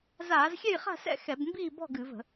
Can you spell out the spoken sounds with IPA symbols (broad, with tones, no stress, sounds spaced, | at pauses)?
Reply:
z aː˧˩˧ z xʲ ɛ˥˨ j χ a̤˥˨ s ɛ̰˥˨ x ɛ˧˩˧ b m b iː˥˨ b ɔ̤˥˨ ɡ ɨ˧˩˧ v ə̤˧˩˧